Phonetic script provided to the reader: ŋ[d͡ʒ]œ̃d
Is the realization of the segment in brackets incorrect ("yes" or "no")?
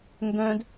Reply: yes